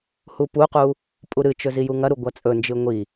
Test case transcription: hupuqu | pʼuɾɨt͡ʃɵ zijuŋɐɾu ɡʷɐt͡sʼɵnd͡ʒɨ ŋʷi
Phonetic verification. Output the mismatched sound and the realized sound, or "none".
none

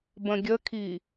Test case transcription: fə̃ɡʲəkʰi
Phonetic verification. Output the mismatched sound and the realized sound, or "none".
f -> b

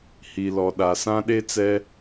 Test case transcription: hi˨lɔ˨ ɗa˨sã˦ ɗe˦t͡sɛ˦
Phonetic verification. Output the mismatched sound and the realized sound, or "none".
none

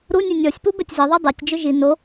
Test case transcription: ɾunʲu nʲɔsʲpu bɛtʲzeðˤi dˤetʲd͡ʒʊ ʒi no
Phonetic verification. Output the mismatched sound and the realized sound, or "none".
none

